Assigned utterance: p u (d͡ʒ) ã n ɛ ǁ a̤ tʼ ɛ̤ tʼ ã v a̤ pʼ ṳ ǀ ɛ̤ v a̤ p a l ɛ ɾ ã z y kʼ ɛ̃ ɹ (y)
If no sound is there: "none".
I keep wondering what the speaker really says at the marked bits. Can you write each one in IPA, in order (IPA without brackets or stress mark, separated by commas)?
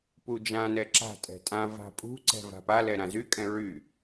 d͡ʒ, y